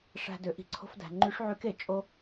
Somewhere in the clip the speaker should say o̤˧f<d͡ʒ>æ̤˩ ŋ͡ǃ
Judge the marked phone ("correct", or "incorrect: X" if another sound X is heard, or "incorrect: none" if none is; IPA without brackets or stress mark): incorrect: d